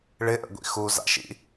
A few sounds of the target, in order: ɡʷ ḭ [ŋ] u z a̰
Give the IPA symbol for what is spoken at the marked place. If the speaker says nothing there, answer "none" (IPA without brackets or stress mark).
x